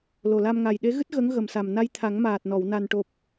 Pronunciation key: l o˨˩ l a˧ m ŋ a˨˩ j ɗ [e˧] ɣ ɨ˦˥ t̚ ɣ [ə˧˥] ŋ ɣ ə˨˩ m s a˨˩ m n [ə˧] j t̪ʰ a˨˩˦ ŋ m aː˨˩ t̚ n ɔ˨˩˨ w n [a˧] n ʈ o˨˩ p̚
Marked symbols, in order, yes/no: no, yes, no, no

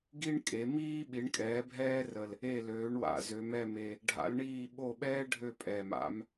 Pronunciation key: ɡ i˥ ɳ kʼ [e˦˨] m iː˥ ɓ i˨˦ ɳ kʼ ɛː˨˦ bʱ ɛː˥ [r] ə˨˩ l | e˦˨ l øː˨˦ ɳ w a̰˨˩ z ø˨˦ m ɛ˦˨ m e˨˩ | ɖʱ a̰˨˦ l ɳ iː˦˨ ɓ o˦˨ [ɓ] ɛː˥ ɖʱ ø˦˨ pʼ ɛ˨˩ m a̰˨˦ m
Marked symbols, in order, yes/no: no, yes, yes

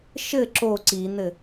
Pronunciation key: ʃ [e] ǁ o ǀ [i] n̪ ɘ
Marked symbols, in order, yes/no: no, yes

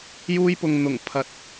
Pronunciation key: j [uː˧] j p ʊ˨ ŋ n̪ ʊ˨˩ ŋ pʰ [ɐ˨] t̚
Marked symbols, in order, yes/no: yes, yes

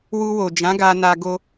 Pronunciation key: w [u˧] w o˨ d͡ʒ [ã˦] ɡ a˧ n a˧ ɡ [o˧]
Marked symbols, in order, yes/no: yes, no, yes

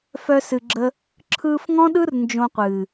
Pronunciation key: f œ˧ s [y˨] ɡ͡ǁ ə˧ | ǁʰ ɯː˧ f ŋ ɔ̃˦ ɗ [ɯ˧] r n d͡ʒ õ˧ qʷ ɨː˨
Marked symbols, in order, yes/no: no, no

